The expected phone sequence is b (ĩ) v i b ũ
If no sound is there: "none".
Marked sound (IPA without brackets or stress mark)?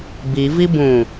i